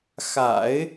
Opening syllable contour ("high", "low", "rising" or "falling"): low